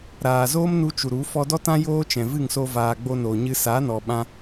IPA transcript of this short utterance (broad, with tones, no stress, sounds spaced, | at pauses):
ɾ aː˨ z oː˦ m n u˧ t͡ʃ u˨ ɾ u˨˦ f ɔ˧ d ɔ˦ t ã˦ j oː˦ t͡ʃ ɛ̃˨ v ɨ˦˨ ŋ s o˧ v aː˨ ɡ͡b o˧ n oː˨ ɲ ɨ˧ s aː˨˦ n ɔ˨ ɓ ã˧